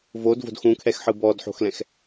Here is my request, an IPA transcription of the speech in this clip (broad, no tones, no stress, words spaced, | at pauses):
vodvo̤d xũkʰɛxħɯ bɔdħo̤xlɛ̃x